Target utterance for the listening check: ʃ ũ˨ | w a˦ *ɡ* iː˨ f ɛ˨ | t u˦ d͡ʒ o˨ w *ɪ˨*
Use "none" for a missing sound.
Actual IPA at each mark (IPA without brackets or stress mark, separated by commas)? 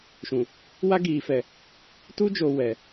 ɡ, ɛ˨